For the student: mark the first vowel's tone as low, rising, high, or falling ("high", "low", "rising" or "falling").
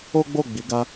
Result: high